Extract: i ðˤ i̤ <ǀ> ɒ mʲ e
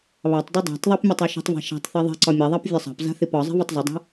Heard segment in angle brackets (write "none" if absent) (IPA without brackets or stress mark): ǀ